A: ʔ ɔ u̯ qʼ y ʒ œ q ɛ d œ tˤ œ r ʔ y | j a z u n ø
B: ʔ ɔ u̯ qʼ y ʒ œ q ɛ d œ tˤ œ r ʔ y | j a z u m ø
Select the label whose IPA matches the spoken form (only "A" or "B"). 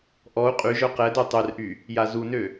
A